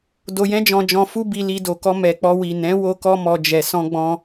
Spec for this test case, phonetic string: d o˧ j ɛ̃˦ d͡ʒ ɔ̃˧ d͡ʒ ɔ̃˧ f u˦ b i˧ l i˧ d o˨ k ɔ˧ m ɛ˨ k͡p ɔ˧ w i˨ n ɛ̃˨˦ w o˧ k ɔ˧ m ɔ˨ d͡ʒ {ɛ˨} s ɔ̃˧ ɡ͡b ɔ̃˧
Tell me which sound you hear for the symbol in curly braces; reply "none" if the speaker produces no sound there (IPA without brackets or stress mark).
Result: ɛ˨